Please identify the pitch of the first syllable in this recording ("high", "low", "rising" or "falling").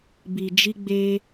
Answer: low